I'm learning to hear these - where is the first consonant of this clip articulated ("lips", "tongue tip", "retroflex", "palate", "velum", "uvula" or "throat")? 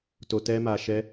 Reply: tongue tip